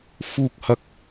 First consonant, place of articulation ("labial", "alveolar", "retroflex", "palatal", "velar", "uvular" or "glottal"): labial